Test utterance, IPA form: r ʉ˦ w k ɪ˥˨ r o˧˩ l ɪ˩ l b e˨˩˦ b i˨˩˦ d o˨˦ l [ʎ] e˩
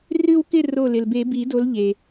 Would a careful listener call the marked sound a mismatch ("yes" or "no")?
no